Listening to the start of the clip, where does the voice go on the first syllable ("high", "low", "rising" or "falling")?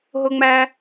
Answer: high